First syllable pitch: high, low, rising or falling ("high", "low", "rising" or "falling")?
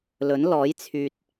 rising